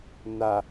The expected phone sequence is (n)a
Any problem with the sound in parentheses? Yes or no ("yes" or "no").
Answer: no